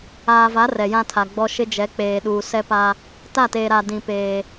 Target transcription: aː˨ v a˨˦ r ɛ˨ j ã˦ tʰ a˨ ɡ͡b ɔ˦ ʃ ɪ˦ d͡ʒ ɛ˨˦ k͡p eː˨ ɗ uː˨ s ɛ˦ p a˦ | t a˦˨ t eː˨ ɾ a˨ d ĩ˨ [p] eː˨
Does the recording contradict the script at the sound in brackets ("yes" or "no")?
no